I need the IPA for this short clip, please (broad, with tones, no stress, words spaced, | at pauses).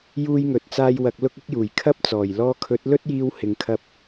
juː˧jŋɵ˨t̚t͡saː˧j wɐ˧k̚lʊ˥k̚ɪ˥k̚juː˨˩j kʰɐ˥p̚t͡sɔː˨˩j lɔː˧kʰɵ˨˥t̚ lɵ˥t̚jiː˧w hɪ˨ŋkʰɐ˧p̚